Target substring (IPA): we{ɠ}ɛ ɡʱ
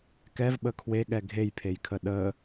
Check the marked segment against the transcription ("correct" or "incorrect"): correct